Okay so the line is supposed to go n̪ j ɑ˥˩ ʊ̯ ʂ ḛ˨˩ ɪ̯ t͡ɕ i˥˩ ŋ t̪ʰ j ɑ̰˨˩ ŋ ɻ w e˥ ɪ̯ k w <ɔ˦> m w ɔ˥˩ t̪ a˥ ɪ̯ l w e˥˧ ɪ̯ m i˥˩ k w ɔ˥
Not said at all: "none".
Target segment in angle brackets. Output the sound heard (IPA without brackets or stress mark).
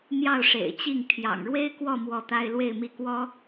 ɔ˥˧